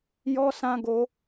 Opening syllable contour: high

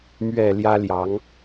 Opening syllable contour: low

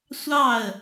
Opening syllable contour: falling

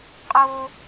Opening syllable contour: high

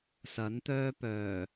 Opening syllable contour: rising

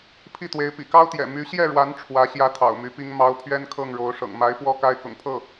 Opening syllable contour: falling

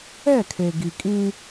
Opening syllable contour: falling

